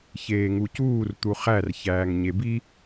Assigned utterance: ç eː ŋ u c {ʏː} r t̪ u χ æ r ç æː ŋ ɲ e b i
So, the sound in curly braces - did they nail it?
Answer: no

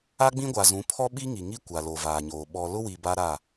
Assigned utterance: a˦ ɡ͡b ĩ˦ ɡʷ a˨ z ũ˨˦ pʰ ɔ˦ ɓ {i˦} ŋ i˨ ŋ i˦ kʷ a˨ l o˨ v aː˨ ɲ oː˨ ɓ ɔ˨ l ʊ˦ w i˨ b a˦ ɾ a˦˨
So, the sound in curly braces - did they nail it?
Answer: yes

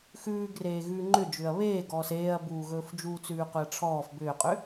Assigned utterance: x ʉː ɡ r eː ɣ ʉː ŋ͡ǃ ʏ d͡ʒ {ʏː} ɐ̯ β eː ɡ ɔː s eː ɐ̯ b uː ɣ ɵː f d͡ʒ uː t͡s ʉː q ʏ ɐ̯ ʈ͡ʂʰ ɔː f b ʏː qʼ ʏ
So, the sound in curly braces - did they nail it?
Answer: yes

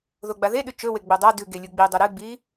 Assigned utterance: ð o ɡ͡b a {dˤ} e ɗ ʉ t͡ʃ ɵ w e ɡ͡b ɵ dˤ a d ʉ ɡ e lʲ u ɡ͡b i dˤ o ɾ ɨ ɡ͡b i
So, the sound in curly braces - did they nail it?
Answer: no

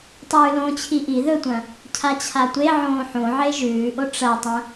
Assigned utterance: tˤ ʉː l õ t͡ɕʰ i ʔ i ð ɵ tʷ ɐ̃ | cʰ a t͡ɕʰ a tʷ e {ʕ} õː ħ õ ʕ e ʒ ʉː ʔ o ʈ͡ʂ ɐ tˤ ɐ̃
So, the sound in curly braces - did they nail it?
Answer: yes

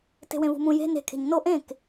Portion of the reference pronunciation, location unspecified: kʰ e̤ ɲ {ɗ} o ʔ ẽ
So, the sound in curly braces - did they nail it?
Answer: no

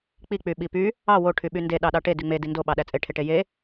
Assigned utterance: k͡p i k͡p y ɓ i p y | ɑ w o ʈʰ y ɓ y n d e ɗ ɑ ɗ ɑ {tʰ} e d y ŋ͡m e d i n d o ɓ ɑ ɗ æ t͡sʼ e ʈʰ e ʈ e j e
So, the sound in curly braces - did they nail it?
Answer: no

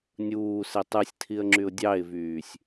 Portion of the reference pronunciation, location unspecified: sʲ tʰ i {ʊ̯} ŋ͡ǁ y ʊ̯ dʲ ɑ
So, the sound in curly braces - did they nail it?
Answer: no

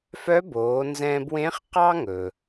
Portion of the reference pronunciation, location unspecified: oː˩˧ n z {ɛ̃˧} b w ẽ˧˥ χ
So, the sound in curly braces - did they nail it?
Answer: yes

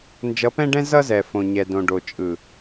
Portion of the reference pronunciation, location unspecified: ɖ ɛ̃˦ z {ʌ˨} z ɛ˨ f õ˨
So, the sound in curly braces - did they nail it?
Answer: no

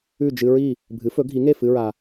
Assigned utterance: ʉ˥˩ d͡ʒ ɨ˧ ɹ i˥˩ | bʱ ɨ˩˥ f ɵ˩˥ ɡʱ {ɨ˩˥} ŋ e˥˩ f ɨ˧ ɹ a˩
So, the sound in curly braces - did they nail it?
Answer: no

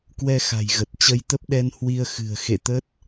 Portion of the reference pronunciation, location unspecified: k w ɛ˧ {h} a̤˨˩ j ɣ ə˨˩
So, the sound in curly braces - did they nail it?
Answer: no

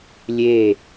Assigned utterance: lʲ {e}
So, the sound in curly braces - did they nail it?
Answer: yes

